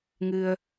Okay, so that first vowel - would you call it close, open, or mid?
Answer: close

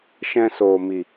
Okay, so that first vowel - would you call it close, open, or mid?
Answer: mid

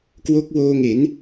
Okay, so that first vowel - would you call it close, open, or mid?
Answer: mid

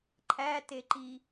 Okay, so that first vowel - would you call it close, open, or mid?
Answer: open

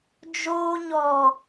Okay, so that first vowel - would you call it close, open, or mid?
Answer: mid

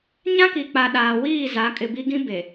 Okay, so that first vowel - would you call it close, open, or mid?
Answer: open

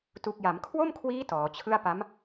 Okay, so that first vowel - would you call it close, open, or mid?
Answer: close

